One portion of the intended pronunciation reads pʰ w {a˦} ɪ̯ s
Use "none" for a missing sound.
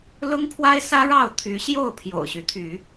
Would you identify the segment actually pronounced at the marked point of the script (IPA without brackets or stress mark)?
a˦